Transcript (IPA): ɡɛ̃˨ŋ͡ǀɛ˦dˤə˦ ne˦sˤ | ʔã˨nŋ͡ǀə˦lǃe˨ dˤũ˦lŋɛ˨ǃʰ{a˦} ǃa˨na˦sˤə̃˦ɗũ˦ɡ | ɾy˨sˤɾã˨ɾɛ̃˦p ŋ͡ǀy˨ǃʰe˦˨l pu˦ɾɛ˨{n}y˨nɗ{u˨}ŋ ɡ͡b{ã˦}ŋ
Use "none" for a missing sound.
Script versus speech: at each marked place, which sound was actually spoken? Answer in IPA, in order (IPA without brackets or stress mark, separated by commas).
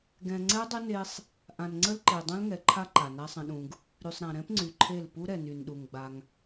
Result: a˦, n, u˨, a˦